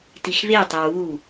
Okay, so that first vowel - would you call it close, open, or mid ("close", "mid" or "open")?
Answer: close